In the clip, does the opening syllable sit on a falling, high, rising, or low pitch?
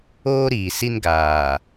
high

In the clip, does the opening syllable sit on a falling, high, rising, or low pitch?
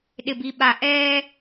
low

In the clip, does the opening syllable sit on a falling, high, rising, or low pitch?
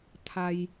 high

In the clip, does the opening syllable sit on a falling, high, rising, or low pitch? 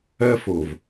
high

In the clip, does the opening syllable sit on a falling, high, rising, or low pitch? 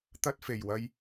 high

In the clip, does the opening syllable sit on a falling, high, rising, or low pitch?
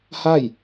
falling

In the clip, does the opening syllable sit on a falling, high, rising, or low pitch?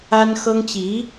high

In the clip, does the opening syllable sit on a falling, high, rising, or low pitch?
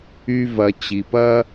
high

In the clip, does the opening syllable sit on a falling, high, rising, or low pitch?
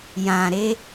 low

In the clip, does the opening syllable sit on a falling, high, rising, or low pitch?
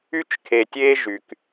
high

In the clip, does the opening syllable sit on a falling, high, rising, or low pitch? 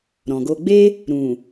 low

